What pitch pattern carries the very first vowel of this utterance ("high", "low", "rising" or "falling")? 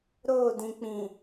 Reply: falling